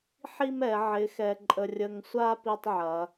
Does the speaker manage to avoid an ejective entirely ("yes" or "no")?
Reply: no